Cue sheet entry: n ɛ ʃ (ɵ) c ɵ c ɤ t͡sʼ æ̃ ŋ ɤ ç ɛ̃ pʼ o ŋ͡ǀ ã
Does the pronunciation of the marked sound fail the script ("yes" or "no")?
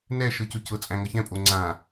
yes